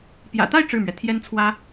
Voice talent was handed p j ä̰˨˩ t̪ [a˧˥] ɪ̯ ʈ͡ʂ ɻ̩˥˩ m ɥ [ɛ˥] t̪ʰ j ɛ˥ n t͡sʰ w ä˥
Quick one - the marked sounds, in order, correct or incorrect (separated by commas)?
incorrect, incorrect